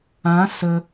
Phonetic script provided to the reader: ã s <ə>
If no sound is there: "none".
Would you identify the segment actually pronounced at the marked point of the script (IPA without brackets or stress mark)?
ə